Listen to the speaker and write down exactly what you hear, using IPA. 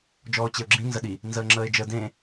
d͡ʒ ɔː ʊ̯ t͡ɕ e ʊ̯ ɡ͡ǁ ĩ n z ə ɗ i | n z əː ŋ͡ǁ əː ɪ̯ d͡ʒ ə d ẽ

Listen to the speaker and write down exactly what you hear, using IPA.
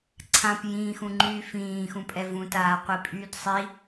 ǀʰ ã p j ĩː x ũ ŋ͡ǃ yː f ĩː x ũ pʼ ɛ v ũ t aː qʷ i pʼ yː d sˤ i

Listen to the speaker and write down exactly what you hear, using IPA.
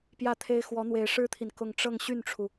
p j ä˥˩ t̪ʰ e˥ ɪ̯ x w ɔ˧˥ n̪ w e˧˥ ɪ̯ ʂ ɻ̩˥ t̪ʰ i˨ n k ʊ˥˧ ŋ ʈ͡ʂ ɤ˥˧ ŋ ɕ y˥˩ n ʈ͡ʂʰ u˩

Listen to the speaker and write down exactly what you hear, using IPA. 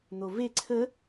n̪ o v e ǀʰ ə

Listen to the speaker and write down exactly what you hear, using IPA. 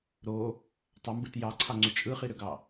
ɾ o | tˤ ɑ m b ɯ t j ɑ ǀʰ ɑ ŋ͡ǀ y t͡ʃʼ ɯ χ i ɾ ø ɡ ɑ

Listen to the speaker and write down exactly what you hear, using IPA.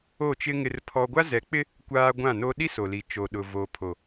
o˦˨ t͡ʃ ɪ˦ ŋ ɪ˦ r pʰ ɔ˦ ɡʷ a˦ z ɛ˨˦ k͡p ɪ˦ | kʷ aː˦ ɡʷ ã˦˨ n o˦ ɗ i˦ s o˨ l i˨ t͡ʃ o˨ ɗ ʊ˨ v o˨ pʰ o˨

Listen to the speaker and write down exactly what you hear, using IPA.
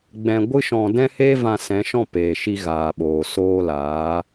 ɡ͡b ɛ̃˧ ɡʷ ɨ˦ ʃ ɔ̃˧ d ɛ̃˦ h eː˦ v ã˧ s ɛ̃˨˦ ʃ ɔ̃˦˨ p eː˨ ʃ i˧ ɣ aː˨ ɓ oː˨ s oː˧ l aː˨˦

